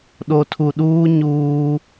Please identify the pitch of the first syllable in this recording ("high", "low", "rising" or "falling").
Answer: low